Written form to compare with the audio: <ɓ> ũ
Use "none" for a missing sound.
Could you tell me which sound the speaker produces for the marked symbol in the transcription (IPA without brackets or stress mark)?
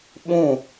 ɓ